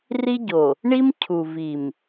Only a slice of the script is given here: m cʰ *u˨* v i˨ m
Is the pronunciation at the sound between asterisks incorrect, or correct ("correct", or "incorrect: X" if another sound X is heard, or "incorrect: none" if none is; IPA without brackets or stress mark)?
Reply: correct